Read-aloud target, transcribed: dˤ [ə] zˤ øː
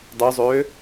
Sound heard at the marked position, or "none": ø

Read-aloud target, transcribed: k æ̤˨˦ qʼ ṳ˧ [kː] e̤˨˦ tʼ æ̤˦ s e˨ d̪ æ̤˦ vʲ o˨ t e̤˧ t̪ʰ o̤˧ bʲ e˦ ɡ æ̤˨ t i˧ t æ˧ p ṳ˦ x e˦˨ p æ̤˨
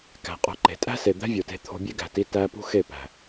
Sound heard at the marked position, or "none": ǃ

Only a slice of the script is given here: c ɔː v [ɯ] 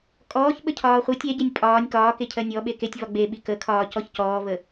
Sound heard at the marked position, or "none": ə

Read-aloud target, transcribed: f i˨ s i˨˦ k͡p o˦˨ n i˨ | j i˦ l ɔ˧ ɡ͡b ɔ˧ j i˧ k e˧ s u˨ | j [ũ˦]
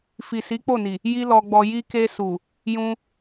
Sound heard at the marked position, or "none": ũ˦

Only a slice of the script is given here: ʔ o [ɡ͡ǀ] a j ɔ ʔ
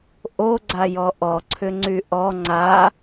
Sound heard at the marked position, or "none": ɡ͡ǀ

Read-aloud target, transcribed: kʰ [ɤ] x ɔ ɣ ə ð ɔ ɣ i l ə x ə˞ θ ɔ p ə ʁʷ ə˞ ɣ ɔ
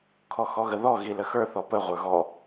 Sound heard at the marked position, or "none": ɔ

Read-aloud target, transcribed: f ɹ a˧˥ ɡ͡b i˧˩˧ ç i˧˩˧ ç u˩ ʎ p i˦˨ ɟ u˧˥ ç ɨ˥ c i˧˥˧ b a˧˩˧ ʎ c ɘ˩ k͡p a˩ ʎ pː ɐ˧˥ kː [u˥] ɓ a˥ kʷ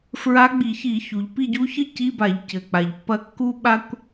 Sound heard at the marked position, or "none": u˥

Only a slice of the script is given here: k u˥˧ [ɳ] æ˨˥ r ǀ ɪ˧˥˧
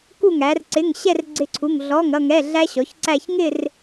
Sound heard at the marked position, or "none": ŋ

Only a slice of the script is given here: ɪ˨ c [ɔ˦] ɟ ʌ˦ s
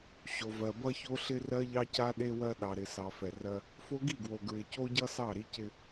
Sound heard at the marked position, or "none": o˦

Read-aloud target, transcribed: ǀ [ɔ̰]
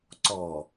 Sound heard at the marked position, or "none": ɔ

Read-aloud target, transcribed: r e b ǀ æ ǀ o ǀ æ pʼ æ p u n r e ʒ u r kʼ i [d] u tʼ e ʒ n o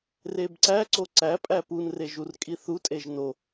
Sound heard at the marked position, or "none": θ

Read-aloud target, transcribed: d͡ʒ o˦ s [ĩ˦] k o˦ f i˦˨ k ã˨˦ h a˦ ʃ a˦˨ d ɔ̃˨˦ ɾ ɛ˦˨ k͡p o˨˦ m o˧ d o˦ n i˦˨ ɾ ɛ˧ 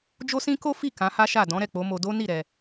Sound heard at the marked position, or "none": ĩ˦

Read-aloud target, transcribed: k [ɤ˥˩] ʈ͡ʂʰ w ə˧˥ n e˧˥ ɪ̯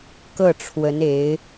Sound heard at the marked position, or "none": ɤ˥˩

